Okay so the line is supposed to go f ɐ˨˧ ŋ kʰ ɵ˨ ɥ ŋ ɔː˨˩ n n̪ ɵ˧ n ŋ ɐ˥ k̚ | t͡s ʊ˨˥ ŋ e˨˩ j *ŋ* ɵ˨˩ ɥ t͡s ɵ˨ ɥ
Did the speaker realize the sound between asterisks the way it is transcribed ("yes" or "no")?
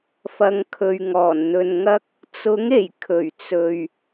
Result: no